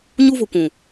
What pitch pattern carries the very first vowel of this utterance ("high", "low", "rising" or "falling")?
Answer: high